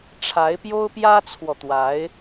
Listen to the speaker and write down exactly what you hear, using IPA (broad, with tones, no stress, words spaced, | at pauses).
ʈ͡ʂʰa˧˥ɪ̯pjo˥ʊ̯ pjä˥t͡sʰwɔ˨t̪wa˧˥ɪ̯